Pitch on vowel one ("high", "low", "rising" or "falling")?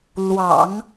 low